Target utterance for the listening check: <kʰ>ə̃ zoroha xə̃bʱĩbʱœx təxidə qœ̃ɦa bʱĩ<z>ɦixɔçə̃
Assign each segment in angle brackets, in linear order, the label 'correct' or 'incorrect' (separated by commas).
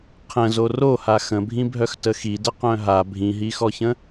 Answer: incorrect, incorrect